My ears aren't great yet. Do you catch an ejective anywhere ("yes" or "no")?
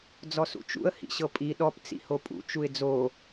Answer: yes